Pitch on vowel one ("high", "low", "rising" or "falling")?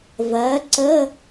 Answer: rising